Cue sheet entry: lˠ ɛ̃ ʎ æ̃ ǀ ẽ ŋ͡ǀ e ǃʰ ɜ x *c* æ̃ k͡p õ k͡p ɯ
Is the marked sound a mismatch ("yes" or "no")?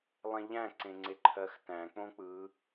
yes